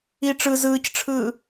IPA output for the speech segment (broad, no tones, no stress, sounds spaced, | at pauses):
i ʈ͡ʂ ɯ z ɯː c ʈ͡ʂʰ ɯː